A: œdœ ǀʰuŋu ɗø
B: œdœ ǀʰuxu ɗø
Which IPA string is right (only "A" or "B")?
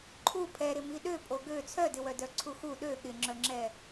B